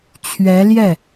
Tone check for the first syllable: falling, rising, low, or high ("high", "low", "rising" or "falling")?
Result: rising